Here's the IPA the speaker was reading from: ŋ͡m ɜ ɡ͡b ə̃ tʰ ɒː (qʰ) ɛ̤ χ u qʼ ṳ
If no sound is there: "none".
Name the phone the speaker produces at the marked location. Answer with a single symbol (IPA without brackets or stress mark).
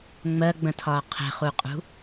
qʰ